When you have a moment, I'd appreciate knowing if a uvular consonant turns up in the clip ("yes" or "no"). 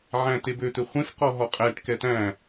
yes